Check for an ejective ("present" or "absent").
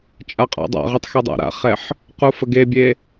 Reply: present